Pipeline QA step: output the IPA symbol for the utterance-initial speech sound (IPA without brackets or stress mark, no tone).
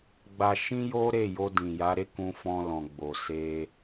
ɡ͡b